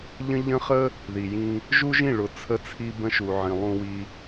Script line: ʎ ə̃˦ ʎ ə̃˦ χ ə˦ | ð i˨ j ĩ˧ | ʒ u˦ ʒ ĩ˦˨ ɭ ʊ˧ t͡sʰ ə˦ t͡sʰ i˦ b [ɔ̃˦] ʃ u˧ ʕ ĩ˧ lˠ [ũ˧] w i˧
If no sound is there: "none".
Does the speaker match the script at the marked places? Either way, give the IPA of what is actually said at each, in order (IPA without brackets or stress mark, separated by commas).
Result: ə̃˦, ũ˧